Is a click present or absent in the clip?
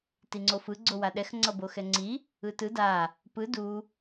present